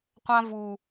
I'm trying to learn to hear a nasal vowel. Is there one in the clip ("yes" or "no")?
yes